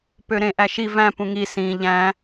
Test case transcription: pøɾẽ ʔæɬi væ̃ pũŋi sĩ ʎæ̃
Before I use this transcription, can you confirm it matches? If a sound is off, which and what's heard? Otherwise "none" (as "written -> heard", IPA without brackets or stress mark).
ɬ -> ʃ